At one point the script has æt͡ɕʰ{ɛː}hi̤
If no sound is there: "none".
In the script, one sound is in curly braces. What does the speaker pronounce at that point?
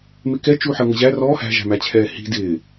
ɛː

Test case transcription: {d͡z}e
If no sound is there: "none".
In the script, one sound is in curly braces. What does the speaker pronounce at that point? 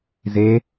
z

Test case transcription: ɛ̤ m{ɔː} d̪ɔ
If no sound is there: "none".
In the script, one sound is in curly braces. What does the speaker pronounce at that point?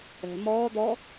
ɔː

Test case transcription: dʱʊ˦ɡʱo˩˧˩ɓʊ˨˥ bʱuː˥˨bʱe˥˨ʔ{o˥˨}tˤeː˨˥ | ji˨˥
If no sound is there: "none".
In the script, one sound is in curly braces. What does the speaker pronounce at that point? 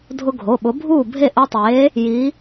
o˦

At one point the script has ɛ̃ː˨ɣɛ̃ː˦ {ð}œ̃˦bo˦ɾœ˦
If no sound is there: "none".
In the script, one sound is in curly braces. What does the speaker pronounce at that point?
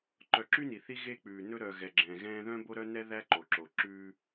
ð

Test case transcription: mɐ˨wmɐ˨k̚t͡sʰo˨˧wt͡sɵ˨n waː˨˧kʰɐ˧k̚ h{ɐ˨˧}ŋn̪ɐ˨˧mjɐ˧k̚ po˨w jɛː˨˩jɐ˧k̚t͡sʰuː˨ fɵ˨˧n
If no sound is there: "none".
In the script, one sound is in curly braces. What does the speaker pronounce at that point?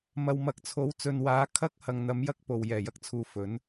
ɐ˨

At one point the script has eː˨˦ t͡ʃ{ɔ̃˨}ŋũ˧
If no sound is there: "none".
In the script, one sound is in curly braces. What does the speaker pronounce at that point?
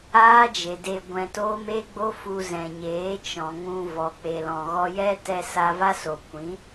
ɔ̃˨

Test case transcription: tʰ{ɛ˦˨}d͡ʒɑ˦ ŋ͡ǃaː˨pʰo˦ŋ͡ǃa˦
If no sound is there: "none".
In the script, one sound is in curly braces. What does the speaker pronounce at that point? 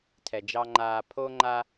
ɛ˨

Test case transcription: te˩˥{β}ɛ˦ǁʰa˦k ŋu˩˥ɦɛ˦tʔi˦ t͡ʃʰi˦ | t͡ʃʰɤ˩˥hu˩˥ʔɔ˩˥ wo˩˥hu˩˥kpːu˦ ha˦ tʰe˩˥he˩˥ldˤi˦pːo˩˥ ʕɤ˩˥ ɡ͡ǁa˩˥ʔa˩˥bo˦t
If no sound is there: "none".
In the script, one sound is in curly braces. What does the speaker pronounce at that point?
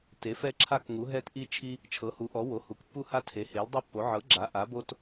f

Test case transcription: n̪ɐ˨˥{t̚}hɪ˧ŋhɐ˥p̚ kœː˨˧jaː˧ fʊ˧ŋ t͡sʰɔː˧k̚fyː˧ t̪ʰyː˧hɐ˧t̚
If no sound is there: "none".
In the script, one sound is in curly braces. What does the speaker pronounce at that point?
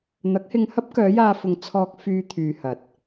k̚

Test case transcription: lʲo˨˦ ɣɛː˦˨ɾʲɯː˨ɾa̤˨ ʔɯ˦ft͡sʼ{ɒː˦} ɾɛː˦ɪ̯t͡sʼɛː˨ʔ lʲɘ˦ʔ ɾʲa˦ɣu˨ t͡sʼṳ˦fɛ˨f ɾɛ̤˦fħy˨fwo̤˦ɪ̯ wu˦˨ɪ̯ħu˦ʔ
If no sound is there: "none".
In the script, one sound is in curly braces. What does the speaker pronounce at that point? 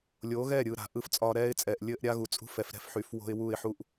ɒː˦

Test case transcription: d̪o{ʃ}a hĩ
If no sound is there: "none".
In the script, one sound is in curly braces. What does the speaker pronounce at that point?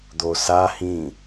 s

